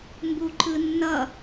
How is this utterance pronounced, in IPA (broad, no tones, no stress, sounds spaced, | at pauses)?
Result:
m b u ǃ ɯ nː ʌ